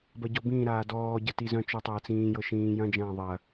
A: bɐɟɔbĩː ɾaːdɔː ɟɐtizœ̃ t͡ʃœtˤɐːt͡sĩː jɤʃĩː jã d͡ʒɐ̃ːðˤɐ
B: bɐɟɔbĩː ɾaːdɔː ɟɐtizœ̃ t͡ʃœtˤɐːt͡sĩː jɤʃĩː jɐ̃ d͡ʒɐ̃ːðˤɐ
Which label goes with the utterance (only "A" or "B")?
B